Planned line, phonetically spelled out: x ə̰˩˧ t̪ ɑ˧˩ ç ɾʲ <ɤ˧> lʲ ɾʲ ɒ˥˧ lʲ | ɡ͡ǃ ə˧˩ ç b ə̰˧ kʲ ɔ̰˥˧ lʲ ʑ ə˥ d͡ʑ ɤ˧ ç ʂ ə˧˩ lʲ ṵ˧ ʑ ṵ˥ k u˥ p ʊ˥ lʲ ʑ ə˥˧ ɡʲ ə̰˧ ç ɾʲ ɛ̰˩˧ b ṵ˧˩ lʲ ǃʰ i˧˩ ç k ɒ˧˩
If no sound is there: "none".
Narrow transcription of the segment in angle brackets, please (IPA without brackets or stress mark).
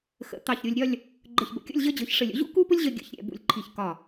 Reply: o˧